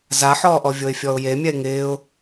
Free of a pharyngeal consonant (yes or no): no